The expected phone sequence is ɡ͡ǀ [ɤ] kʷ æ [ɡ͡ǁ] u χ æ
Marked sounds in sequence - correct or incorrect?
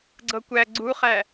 correct, incorrect

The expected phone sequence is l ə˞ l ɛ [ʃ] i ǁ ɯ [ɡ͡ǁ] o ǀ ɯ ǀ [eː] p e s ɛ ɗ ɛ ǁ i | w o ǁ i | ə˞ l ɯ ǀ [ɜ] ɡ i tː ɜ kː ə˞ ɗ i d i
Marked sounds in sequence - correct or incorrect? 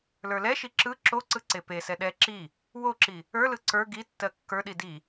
correct, incorrect, incorrect, incorrect

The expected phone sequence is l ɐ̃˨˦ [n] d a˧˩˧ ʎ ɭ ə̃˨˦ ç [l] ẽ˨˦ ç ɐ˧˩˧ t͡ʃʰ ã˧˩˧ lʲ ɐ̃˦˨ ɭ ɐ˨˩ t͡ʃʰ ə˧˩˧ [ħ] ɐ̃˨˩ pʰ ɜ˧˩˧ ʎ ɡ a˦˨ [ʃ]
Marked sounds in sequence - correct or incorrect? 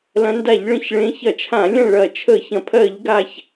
correct, incorrect, incorrect, incorrect

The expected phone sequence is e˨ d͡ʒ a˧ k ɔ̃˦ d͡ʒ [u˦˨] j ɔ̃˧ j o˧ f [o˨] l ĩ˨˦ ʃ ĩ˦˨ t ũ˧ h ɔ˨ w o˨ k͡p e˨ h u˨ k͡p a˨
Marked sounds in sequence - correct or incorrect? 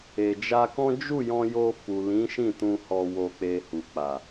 correct, incorrect

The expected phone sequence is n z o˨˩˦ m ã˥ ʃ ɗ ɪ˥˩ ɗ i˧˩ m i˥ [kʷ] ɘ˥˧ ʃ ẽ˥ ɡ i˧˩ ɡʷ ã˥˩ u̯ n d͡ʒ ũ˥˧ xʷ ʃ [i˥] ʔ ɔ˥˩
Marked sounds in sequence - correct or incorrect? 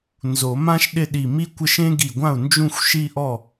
correct, incorrect

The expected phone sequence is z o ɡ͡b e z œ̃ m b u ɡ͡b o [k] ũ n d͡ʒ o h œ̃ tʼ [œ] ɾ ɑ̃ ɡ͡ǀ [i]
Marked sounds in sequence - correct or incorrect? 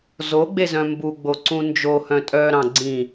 incorrect, correct, incorrect

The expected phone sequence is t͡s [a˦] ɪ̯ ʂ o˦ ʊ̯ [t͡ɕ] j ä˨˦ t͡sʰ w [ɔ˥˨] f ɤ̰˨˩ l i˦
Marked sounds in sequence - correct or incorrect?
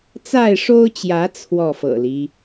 incorrect, correct, correct

